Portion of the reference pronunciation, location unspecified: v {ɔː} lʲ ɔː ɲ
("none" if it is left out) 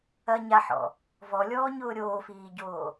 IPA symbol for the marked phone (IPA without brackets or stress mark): ɔ